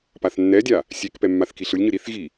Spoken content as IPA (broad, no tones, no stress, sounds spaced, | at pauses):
p a θ nː ɛ dʲ a | sʲ e k p ɛ mː a θ k i ɬ ɯ lʲ ɲ ɯ ɾ i θ ɣ i